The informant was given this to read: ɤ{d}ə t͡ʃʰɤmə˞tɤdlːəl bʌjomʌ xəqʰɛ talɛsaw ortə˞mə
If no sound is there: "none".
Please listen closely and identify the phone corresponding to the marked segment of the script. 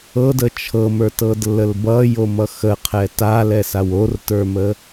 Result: d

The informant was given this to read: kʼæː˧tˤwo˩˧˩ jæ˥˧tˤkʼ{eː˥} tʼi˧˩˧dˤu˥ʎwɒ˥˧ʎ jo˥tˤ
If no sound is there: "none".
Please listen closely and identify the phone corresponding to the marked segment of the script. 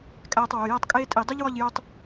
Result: eː˥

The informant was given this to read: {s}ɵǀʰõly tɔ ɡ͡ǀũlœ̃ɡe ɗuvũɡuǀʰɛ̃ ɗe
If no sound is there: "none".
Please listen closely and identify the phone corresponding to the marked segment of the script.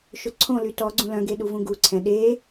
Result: ʃ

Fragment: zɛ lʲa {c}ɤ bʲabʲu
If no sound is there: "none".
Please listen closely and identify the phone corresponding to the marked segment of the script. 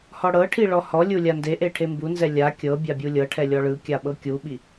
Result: kʲ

